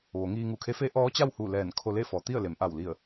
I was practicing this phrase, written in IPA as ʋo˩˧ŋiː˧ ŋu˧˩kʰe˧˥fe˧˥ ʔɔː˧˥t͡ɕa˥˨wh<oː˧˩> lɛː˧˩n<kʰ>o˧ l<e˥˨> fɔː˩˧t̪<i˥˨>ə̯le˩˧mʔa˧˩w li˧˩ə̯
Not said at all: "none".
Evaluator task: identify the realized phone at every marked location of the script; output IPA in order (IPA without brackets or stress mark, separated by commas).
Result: uː˧˩, kʰ, e˥˨, i˥˨